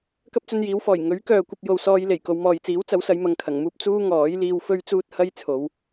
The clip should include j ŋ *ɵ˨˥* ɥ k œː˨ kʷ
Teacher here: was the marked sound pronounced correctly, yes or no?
yes